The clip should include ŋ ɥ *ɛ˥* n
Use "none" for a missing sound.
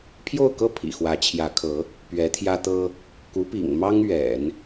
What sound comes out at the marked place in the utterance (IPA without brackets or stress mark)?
ɛ̰˨˩˦